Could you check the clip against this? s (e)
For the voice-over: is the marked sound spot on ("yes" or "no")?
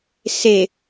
yes